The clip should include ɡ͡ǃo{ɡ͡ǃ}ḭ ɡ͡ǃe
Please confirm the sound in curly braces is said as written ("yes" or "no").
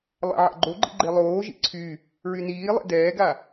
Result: yes